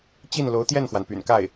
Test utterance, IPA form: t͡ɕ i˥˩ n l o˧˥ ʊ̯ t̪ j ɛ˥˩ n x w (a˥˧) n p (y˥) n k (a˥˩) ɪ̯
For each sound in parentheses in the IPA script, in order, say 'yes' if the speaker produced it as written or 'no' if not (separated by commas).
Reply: no, no, yes